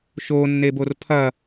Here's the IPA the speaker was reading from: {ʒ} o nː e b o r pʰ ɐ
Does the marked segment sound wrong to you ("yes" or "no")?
yes